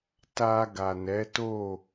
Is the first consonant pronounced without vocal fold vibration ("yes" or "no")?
yes